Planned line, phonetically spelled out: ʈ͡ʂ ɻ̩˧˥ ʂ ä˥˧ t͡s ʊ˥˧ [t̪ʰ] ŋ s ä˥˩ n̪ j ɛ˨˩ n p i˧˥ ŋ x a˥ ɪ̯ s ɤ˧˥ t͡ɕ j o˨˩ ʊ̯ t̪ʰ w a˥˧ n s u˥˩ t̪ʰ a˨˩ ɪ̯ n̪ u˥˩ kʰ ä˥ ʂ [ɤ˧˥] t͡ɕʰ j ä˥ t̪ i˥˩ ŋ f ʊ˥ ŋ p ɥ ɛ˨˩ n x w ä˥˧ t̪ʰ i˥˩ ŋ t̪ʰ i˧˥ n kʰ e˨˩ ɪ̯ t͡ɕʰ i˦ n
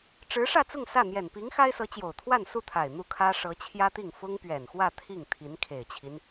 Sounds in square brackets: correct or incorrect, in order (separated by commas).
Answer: incorrect, correct